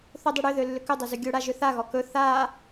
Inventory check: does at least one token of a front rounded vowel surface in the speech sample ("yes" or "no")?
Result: yes